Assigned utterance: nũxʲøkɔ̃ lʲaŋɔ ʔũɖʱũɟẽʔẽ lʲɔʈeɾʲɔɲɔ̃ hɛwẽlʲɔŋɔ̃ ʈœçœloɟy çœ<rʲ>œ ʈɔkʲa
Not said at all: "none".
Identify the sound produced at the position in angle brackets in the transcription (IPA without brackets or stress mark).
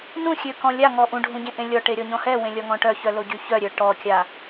ɾʲ